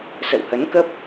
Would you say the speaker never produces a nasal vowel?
yes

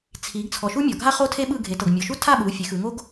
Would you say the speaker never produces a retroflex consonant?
yes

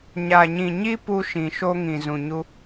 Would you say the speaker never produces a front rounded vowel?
yes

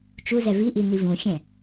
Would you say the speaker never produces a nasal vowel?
no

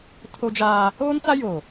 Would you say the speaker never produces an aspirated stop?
no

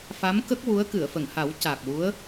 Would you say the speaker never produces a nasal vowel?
yes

